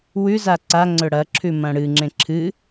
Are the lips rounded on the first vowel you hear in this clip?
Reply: yes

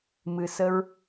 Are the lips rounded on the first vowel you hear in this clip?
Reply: no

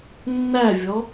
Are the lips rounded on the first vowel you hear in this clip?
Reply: no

